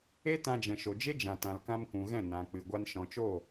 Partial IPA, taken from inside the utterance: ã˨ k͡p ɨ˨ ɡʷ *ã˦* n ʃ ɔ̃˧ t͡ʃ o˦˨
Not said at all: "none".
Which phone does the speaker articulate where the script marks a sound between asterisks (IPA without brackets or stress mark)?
a˦